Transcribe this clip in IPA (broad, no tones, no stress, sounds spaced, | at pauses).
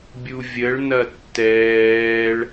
bʲ u vʲ ə ɭ n ɐ tː ɛː ɭ